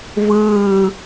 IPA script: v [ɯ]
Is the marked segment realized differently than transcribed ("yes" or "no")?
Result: yes